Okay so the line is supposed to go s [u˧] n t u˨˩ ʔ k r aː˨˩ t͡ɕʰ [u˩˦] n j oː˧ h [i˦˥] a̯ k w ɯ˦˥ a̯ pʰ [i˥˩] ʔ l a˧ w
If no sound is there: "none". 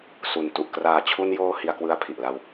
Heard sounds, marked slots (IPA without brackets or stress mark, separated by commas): u˨˩, u˧, i˧, i˨˩